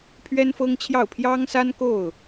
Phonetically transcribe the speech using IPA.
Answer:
pʰ ɥ ɛ˥ n f ɤ˥ ŋ t͡ɕʰ j ɑ˥˩ ʊ̯ pʰ j ɑ˥ ŋ s a˥ n k o˥˩ ʊ̯

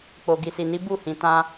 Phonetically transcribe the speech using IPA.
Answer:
k͡p o˨ ɡ i˨ s i˨ n i˨˦ b u˦˨ h ĩ˨ t ã˧

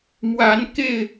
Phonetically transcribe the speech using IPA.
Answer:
m w a˨˦ n k e˥˨ ɪ̯

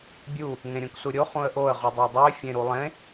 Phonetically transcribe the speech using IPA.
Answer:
bʲ u | ŋ ẽ ɾʲ õ k s u ɾʲ o χ ũ ə̯ ʔ o ə̯ ʁ u dˤ o dˤ u ɪ̯ fʲ ẽ ɾ u lˠ ẽ

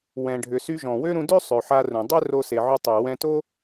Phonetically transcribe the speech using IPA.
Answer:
w ɛ̃˩ ɖʱ ʏ˩ s y˧ ʒ ɔ̃˩ w ø˥ ɾ ũ˧ d ø˥ sˤ ø˩ ħ a˧ r ũ˩ dˤ ø˥ r o˧ s e˩ ʕ ʊ˧ tˤ ø˩ w ɛ̃˧ t o˥

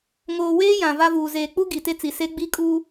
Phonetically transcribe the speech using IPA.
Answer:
ŋ oː˨ w eː˦ j ã˨ v a˦ v uː˨ z eː˨ k͡p u˦ ɡ i˨ t e˦ t͡s i˨ s e˦ ɡ͡b i˦ kʼ uː˦

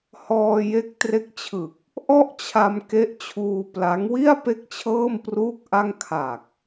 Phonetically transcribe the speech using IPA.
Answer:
h ɔː˧ j e˦˥ k̚ t r e˦˥ k̚ t͡ɕʰ ɯ˨˩ k̚ | ʔ ɔ˥˩ ʔ t͡ɕʰ a˧ m k e˦˥ ʔ t͡ɕʰ uː˧ p l a˦˥ ŋ w i˥˩ a̯ p e˥˩ k̚ t͡ɕʰ ɤː˥˩ m p r uː˥˩ k̚ ʔ a˥˩ ŋ kʰ a˨˩ k̚

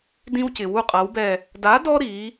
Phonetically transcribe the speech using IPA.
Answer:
d ĩ˦ w c ɪ˩ w u˦˨ qʼ a˨˥ w b ɛ˦˨ | d a˨˥ d ɔ˦ ɾ i˩˧

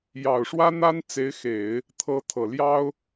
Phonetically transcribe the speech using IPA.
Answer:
j ɑ˨˩ ʊ̯ ʂ w ä˥ n̪ a˥ n t͡s e˧˥ ɪ̯ x e˨˩˦ ɪ̯ | t̪ʰ ɤ˧˥ t̪ʰ ɤ˨˩ l j ɑ˥ ʊ̯

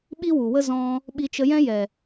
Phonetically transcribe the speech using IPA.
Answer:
ɓ i˦ w u˨ w ə˦ z ɔ̃˧ | ɓ i˧ t͡ʃ ə˧ j ɛ̃˦ j ɛ˨

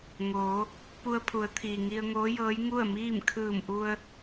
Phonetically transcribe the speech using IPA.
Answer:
ŋ oː˩˧ | p u˧ ə̯ pʰ u˩˧ ə̯ t̪ʰ iː˩ ŋ i˧ ə̯ ŋ oː˧˥ j ɤː˧˥ j ŋ u˥˨ ə̯ m iː˥˨ m kʰ ɯː˧˩ m ʔ u˧ ə̯

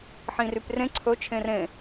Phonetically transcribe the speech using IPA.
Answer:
ħ ĩ r y p r ẽ ǀʰ ɵ t͡ʃʰ ẽ r ẽ

